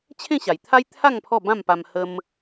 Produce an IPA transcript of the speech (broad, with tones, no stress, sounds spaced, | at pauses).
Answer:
t͡ɕʰ ẽ˥˧ ɕ a˨˩ j t̪ʰ a˦ j t̪ʰ a˥˧ ŋ pʰ ɔ˥˧ b ã˥˧ m p a˧ m h ə˦ m